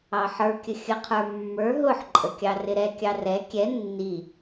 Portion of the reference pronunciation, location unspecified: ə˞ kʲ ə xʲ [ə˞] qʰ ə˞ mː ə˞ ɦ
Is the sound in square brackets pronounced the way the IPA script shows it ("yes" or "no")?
no